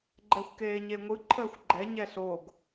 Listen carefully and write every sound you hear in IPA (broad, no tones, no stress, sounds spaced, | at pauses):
ɡ͡ǃ ɛ xʷ k eː ɲ e ŋʷ ɯ ǃʰ əː xʷ ɡ͡ǃ ɛ ɲ ɛ ɬ o ɡ